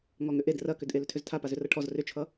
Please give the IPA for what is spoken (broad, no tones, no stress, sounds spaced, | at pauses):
ŋ ɔ ŋ ʏ ʔ e d r ɐ k ʏ d ʔ e l ʏ tʰ ʏ z tʰ a p a z ʏ r ʌ ʈʰ ɔ z r ʏ t͡ʃʰ ʌ